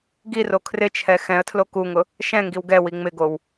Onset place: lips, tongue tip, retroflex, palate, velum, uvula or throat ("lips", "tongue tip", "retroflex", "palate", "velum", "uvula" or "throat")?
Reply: velum